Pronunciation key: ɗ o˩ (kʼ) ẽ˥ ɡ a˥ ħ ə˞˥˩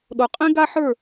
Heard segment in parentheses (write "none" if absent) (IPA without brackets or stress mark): qʼ